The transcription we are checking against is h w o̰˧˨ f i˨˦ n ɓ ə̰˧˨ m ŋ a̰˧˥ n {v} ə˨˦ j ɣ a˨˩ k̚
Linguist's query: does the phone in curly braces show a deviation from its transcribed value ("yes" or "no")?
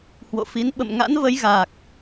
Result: no